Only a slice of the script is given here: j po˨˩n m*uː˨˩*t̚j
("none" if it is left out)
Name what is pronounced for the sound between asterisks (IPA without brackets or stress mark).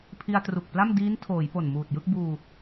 uː˨˩